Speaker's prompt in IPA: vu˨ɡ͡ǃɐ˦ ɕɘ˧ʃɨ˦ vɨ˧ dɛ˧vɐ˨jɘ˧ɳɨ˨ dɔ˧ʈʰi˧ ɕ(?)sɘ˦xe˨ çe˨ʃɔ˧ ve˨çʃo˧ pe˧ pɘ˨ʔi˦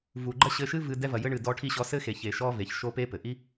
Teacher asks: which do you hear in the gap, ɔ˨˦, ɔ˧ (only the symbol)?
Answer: ɔ˧